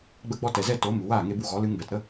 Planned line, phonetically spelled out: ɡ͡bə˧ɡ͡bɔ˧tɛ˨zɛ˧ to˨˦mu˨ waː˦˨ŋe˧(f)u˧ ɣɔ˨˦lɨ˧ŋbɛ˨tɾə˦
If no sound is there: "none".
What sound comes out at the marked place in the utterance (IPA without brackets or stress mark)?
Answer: b